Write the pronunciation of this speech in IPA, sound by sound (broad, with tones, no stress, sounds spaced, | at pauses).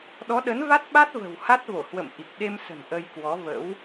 ɗ ɔ˨˦ ɗ ə˨˦ n v a˦˥ t̚ ɓ a˦˥ t̚ v ə̤˨˩ w h a˦˥ t̚ v o˧˩ h w ə̰˧˨ m ʔ i˨˩ k̚ ɗ e˧ m s ə̤˨˩ n ʔ ə˧ j k w ɔ˨˦ v ə̰˧˥ w